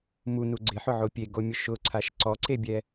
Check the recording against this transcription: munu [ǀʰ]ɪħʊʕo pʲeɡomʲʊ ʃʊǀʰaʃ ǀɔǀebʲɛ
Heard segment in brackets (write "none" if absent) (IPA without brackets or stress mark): ɡ͡ǀ